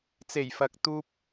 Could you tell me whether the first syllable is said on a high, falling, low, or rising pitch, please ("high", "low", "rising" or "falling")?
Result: low